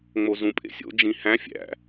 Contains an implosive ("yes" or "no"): no